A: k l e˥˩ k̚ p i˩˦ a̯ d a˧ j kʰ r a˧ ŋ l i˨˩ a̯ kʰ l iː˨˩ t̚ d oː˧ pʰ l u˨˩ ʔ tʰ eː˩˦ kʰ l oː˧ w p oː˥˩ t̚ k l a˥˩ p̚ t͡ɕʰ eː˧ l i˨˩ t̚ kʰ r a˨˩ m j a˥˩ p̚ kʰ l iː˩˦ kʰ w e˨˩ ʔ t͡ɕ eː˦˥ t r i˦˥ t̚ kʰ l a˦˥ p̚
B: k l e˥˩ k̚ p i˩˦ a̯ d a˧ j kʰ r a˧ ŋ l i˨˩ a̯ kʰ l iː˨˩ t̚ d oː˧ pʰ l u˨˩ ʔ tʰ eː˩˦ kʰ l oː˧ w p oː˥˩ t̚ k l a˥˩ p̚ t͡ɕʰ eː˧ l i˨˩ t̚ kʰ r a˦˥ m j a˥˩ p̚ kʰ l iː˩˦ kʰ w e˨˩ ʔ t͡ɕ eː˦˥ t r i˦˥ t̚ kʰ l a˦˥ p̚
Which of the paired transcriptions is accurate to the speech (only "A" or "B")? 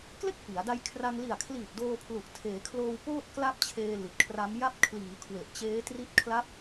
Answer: B